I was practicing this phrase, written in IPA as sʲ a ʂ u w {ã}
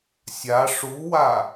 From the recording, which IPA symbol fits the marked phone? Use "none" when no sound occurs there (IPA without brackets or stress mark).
a